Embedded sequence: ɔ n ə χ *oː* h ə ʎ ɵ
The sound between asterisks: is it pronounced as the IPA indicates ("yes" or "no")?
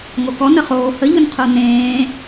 yes